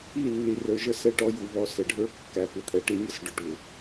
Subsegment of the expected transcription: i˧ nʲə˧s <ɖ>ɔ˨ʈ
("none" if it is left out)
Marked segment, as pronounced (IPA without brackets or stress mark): ɖ